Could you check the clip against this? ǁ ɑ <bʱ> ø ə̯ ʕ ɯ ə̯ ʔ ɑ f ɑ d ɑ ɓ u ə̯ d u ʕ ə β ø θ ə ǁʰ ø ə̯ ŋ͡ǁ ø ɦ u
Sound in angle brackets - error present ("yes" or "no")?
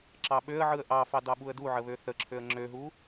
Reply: yes